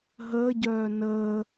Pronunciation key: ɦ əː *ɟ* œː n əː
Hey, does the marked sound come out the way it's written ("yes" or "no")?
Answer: yes